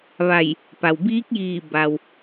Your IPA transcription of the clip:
ʋ a˧˩ j | p a˩ w b iː˧˥ k̚ j iː˧˩ b a˩ w

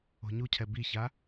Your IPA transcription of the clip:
o̤ ɲ u cʰ ɛ b i ç a

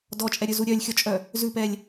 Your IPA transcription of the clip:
d ɔ t͡ʃʼ ɛ ɾʲ ɵ z u ɾʲ œ lʲ xʲ ɔ t͡ʃʼ œ | z ʉ p ɛ lʲ

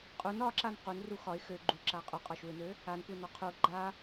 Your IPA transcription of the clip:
qʼ u n ɒ ǁ a n q u n r u x ɒ ɪ̯ x ø ɡ͡ǃ u ǁ a qʼ u qʼ ɒ ʃ u ɪ̯ n ø | a n kʷ e n ɒ qʰ u ɡ͡ǃ a

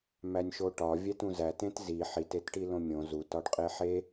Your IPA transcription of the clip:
m æ nʲ ʃ o ʈ ɒ vʲ æ t ũ z æ t ẽ t z i ħ i t e t ʈ i l õ mʲ õ z u t ɒ ɖ qʼ e ħ e

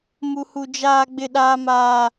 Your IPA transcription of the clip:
m u˦ h u˦ d͡ʒ aː˦ ɡ͡b ɪ˦ ɗ aː˦ m aː˦

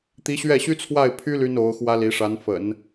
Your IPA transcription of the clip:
t̪ i˧˥ ɕ ɥ ɛ˥˩ ɕ y˥ t͡sʰ w a˥˩ ɪ̯ pʰ y˥ l y˥ n o˧˥ ʊ̯ x w ä˥ l i˧˥ ʂ a˧˥ n f ə̰˨˩˦ n

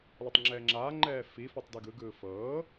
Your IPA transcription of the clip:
l ɔ tˤ ŋ͡ǁ ɛː ŋ͡ǁ aː ŋ͡ǃ ɛː f i f ɔ tˤ d i ɡ ɯ ɡ ɯː f ɤː

